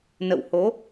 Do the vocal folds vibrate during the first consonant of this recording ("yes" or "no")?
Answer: yes